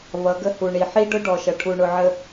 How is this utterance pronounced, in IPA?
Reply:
v ʌ˨˦ ɡ ə˦ h u˨ ɳ i˨ ħ i˦ ɖ ʊ˦ ɖ ɔ˨ ʃ ʌ˨ ʈʰ u˨ ɳ ʊ˨ ʕ ə˨

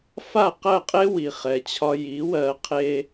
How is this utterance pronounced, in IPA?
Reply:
f a˥˩ q ɜ˥˩ qʼ e˥ w i˩ χ ɛ˩ t͡ɕʰ ɒ˧ j i˩˥ w ɜ˧ qʰ e˥

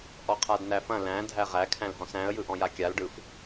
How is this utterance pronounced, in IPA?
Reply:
ʔ ɔ qʰ a d n æ f ɐ̃ l æ̃ dʱ æ ʁ æ kʰ æ̃ l ɦ ɔ̃ s æ̃ ə̯ j ɯ ʔ ɔ̃ j a kʲ a l ɖ ɯ f

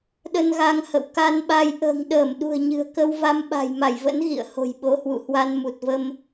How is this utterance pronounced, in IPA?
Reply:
ɗ ə˧ n ɣ a˧ ŋ h ə̰˧˨ w k a˧ n ɓ a˧ j ʔ ə̤ː˨˩ ŋ ɗ əː˧˩ m ɗ ṳ˨˩ ə̯ ɲ ɨ̤˨˩ ə̯ k ə˧ w v a˧ m ɓ a̤˨˩ j m a˧˩ j v ə̰˧˥ n ɣ ḭ˧˨ ə̯ h o̤˨˩ j ɓ o˨˦ h w ṵ˧˨ h w a˧ n m u˨˩ t̚ v ə˧ m

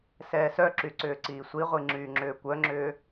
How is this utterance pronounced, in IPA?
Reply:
s ɛː s œ ǁ y ǀ ʏː ǀ iː sʷ i ʁʷ i ŋ͡ǁ yː ŋ͡ǁ ʏː kʷ œ ŋ͡ǁ ʏː

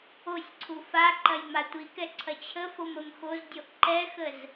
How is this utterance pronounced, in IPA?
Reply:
o sʲ ǀʰ u f a ǃ ɐ j m a tʷ i k ɛ ǀʰ ɐ t͡ɕʰ ə f o m ə m x o z dʲ o ʔ ǃ ɛ x ə z

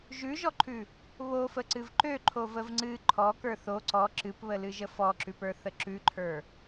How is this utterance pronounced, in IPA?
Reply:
ʒ ʉ ʒ ɔ ǃʰ ʉ | β o f ə ǀ ɨ v ǃ ø ǃʰ o v ə v ŋ͡ǀ ɨ ǃʰ ɔ k ə˞ θ o ǀ ɔ ǁ ɨ p β ə l ɨ ʒ ə f ɔ ǁ ʉ p ə˞ θ ə ǁ ʉ ǃʰ ə˞

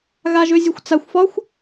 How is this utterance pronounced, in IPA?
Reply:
ɣ a ʒ ø zʲ ø xʷ t͡s a xʷ f ɒ xʷ

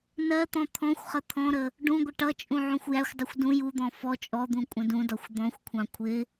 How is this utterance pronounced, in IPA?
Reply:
n ɜ t̪ ɔ̃ t̪ʰ ɔ̃ xʷ χ ə t̪ʰ ɔ̃ ɾ ə | ɖ ũ ɡʷ ɪ ʈ ʌ t͡ʃʼ ũ ʕ ũ xʷ j æ xʷ dˤ u xʷ d ũ j u d̪ ɔ̃ f ɔ t͡ʃʼ ɔ d̪ ũ kʷʼ ə̃ d ũ d ɒ xʷ d̪ ɔ̃ xʷ kʷʰ ɑ̃ kʷʰ ɪ

